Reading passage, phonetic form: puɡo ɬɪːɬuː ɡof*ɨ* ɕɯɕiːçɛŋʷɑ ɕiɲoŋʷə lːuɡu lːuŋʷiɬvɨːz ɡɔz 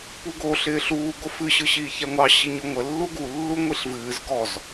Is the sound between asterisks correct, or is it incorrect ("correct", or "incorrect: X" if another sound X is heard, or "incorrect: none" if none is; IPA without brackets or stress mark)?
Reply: correct